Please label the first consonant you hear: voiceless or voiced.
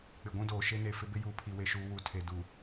voiceless